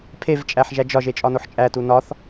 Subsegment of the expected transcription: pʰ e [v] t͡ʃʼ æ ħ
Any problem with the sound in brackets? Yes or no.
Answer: no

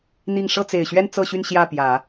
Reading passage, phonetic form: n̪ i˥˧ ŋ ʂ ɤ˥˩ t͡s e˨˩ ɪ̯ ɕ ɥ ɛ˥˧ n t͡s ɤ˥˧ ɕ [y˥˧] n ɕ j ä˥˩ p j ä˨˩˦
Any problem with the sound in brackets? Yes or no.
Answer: no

